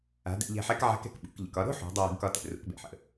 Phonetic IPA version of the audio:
a̤˩˧ d ɛ̰˧ ʎ ɛ̤˧ ħ ɛ˧˥ k ʕ a̤˧˥ k ɛ̤˩ k ɓ ṵ˩˧ k ʎ ə̰˩ k ɒ˧ ɾ o̤˥ ħ ṳ˩˧ dˤ ɘ˧ w ə̤˩˧ ɡ k ɒ˧ t ɛ̰˩ r ṵ˩˧ k b ɛ̰˩ ħ ə̰˩

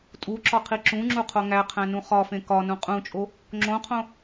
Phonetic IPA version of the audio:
tʼ u ǁ ɒ qʰ i ǁ ũ ŋ͡ǁ u qʰ o ŋ æ qʰ æ̃ n ũ χ ɒ f ẽ k ɒ n ũ qʼ ũ t͡ʃʼ o | ŋ͡ǁ õ qʰ õ

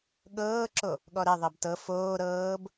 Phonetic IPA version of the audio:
ɠ ɤː ǁ o | ɠ ɔ ɾ ɛ ðˤ ɜ b t ɤ f oː ɾ ɤː b

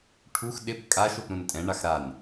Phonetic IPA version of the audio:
ʈʰ u x ɗ ɪ p kʼ a ʃ o p ɾ ũ n tʼ ɛ̃ ɳ a x ɾ a n

